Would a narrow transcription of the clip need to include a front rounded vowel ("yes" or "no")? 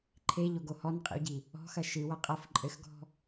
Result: no